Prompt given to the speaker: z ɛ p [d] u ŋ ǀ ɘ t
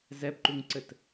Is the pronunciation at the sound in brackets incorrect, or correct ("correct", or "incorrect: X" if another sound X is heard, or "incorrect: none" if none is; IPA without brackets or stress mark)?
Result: incorrect: ǃ